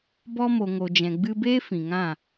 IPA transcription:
b ɔ˧ m o˨ ŋ o˨ d͡ʒ ɛ̃˨ ɡ͡b ɨ˧ b eː˦ f ĩ˨ ŋ ã˦˨

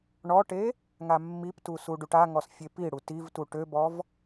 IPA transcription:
ɳ ɔ ʈ e | ŋ a mː i p t u s u ɖ u ʈ a ŋ ɔ s fʲ e p i ɽ u t i v t u ʈ ø b ɔ v

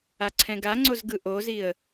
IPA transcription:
a ǀʰ ɛ̃ ɡ a ŋ͡ǀ o z ɡ ɯ ʔ o z i ə̯

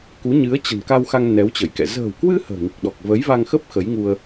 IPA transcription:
k u˨˦ ɲ ɨ˨˦ ə̯ t͡ɕ ə̤˨˩ n k a˧ w x a˧ ŋ n ɛ˨˦ w t͡ɕ ə˧˩ j k ɛ̰˧˨ z ə̤ː˨˩ w k w ɨ˧ h ə̤ː˨˩ ŋ i˨˩ k̚ ɗ ɔ˨˩ k̚ v ə˨˦ j v a˧ ŋ x ə˦˥ p̚ x ə˨˦ j ŋ u˧ ə̯

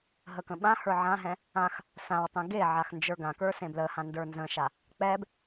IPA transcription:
ɦ ə k ə̃ ɓ ã h ə˞ ʕ ã ɦ ɛ̃ | ã x | s ã w tˤ ẽ ɡ e ʕ a x n d͡ʒ ə˞ ɡ ã k ə˞ s ẽ b l ə h ã n d ə˞ n z ə̃ ʃ a | k͡p ɛ b

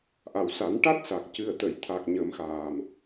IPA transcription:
ʔ a˨˩ w s a˨˩˦ n ʈ a˦˥ t̚ s a˨˩ k̚ c ɨ˨˩ ə̯ t̪ ə˨˩˨ j t̪ʰ a˨˩ k̚ ɲ ə˨˩˦ m x aː˨˩ m

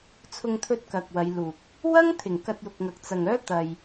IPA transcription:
t͡sʰ ʊ˧ ŋ t̪ʰ ɵ˧ t̚ k ɐ˨ k̚ w ɐ˨˧ j l uː˨ k̚ | w ɐ˥ ŋ t̪ʰ ɪ˨˩ ŋ k ɐ˧ t̚ j ʊ˨ k̚ ŋ ɐ˨ k̚ t͡s ɐ˨ ŋ œː˥ t̪ ɐ˧ j

